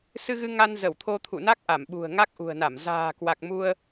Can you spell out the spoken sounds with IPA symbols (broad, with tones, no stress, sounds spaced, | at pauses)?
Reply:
s ɨ˧ ɣ ɨ˧ ŋ a˧ n z ə˧˩ w t̪ʰ o˧ t̪ʰ ṵ˧˨ n a˦˥ k̚ ʔ a˧˩ m ɓ ṳ˨˩ ə̯ ŋ a˦˥ k̚ ʔ ṳ˨˩ ə̯ n a˧˩ m z a̤ː˨˩ k w a˨˩ k̚ m u˧ ə̯